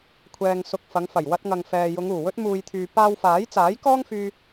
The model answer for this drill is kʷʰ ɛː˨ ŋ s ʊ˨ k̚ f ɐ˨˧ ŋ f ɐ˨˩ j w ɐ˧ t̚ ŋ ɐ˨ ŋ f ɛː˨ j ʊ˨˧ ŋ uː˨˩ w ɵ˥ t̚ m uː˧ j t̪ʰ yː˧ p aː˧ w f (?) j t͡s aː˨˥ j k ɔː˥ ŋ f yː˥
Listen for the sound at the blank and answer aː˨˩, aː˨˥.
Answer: aː˨˥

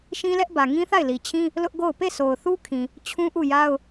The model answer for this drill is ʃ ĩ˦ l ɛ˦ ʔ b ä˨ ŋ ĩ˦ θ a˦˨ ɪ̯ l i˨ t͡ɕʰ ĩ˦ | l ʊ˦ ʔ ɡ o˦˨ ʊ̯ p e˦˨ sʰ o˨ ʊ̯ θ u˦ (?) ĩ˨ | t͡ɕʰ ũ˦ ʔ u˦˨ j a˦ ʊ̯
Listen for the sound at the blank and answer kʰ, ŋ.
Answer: kʰ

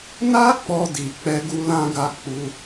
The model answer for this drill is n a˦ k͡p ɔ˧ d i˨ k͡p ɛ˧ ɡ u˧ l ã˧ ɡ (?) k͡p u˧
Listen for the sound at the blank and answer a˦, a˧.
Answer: a˧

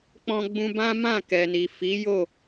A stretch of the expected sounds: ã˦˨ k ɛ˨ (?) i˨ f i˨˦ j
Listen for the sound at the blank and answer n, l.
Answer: n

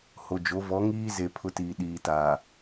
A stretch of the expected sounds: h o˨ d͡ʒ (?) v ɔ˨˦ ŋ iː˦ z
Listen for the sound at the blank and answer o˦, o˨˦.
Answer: o˨˦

